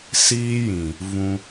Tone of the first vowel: high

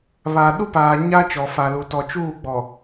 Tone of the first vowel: low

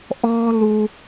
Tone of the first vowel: high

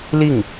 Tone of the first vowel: falling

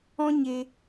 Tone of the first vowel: high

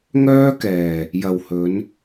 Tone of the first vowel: high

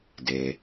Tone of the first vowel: low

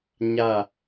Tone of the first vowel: falling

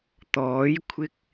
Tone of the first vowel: rising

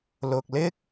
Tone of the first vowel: low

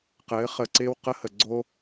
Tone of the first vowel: rising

